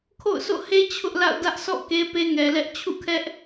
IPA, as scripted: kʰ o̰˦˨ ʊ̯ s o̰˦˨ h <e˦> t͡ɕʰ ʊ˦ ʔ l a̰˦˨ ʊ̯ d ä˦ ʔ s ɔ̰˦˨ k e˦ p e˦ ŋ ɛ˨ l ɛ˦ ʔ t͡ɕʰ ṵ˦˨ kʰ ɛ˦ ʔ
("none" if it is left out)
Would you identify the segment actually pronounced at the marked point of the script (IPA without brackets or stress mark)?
e˦